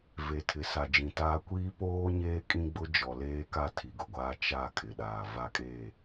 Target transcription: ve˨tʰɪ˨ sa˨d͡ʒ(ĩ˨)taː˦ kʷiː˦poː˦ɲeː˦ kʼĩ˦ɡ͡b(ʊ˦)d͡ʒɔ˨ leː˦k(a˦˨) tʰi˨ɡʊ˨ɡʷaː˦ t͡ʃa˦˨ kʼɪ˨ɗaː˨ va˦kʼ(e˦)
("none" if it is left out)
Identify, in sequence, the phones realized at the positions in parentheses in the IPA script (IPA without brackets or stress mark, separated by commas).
ĩ˨, ʊ˦, a˦˨, e˦˨